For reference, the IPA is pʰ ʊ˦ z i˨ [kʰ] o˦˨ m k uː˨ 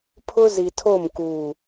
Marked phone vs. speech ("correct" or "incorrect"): incorrect